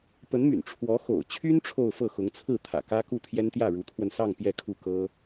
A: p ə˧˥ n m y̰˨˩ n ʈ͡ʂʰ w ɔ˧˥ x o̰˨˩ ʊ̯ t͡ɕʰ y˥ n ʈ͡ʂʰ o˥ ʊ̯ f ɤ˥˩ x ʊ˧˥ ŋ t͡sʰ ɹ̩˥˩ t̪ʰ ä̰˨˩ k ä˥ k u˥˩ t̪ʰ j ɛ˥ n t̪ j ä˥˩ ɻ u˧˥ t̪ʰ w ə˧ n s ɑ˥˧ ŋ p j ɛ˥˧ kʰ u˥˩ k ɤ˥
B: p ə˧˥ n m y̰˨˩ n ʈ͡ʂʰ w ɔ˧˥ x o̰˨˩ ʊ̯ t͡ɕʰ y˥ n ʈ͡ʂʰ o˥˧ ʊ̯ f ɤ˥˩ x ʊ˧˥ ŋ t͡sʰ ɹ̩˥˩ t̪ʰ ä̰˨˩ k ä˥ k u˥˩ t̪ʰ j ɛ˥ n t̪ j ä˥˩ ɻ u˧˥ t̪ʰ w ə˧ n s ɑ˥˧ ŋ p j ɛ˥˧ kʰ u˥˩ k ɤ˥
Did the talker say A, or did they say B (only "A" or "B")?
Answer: B